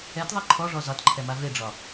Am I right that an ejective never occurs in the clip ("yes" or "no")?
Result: yes